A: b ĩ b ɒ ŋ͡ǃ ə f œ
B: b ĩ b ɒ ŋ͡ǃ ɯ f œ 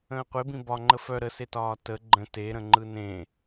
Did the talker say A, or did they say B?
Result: A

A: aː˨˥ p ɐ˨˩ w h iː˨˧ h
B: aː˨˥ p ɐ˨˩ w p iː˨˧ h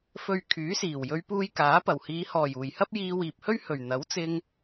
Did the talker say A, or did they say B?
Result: A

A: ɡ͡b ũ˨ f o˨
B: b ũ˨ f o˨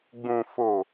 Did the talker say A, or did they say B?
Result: A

